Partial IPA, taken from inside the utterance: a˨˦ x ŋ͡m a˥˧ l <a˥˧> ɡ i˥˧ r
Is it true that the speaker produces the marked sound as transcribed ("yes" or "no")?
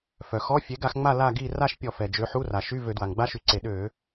yes